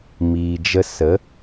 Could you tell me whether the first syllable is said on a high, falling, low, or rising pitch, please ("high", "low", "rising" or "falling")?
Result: low